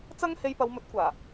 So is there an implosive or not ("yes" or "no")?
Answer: no